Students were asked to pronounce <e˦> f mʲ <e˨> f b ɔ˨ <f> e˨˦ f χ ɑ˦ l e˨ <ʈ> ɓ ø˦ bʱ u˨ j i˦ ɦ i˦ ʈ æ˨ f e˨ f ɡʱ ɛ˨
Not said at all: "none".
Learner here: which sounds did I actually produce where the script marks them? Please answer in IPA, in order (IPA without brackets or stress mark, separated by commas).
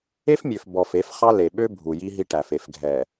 e˦, ø˨, f, none